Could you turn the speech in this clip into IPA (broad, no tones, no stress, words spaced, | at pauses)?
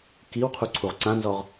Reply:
kiwqʰuǀʰuʁ ǀãnzɔʁ